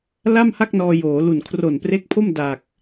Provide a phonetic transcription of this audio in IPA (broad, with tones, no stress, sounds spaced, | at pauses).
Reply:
l a˥˩ m h a˥˩ k̚ n ɔː˧ j oː˩˦ l u˨˩ n kʰ r o˨˩ n p r e˦˥ k̚ pʰ o˥˩ m d a˨˩ k̚